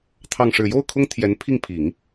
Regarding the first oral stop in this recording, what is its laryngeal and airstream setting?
aspirated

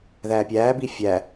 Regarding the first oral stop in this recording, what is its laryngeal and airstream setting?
plain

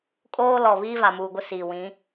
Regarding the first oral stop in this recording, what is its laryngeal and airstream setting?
ejective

